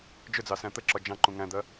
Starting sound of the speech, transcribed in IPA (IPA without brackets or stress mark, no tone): d͡ʒ